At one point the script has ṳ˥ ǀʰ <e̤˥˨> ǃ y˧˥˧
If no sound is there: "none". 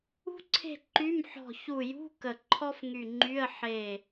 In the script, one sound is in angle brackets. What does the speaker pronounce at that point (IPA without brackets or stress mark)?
e̤˥˨